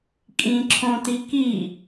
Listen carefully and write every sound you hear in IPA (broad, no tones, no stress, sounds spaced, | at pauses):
kʼ ĩ ǁʰ õ t i k i